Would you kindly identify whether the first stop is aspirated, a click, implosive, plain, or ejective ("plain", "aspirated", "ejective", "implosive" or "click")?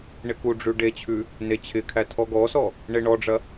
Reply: plain